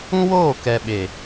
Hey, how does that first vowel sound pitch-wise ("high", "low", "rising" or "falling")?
high